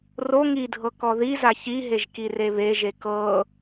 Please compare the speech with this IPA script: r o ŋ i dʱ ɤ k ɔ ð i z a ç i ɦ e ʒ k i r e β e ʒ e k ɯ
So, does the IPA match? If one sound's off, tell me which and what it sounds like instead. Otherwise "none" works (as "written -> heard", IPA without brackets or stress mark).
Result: ɯ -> ɤ